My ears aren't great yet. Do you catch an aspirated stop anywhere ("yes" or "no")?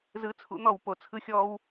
yes